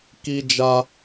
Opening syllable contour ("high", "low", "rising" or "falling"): high